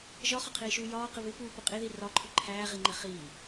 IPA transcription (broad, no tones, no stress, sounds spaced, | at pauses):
ʒ ɒ χ ɒ qʰ iː ʃ uː j ɒː q ɪ β ɪ p uː p ʊ qʼ i ð i r ɒ ǃʰ ʊ ǃʰ æː ʁ i ŋ͡ǃ ɪ χ iː